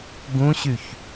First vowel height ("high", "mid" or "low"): high